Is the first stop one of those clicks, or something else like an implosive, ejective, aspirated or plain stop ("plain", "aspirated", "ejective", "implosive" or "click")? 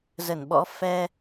implosive